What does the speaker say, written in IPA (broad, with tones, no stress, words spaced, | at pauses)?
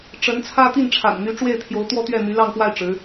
ʈ͡ʂə˧˥nt͡sʰä˥ t̪i˥˩nʈ͡ʂʰa̰˨˩n n̪y˧˥ʈ͡ʂwe˥˩ɪ̯t̪ʰjo˧˥ʊ̯ t̪wɔ˥˧t̪ɥɛ˥˩ n̪y˧˥lɑ˥˧ŋpwa˥˩ɪ̯ ʈ͡ʂɻ̩˧˥